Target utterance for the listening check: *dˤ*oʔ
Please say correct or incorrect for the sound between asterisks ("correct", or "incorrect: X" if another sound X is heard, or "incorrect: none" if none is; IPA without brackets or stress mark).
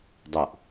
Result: correct